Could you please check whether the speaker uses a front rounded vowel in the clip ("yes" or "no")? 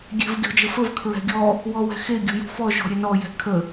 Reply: no